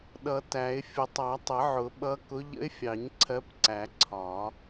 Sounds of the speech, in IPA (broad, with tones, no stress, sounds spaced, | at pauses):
ɗ ʌ˨˩˦ t æ˨˩˦ ɪ̯ fʲ ʊ˨˩˦ tˤ ɑ˨˩˦ tˤ ə˨˩˦ ʕ ʊ˨˩˦ ɓ ʌ˧˥ k ʊ˧˥ ʎ ə̰˧˥ ɪ̯ fʲ ɑ˨˩˦ ɲ ǀʰ ɜ˧˥ p ǀ æ˨˩˦ ǀʰ ɒ˨˩˦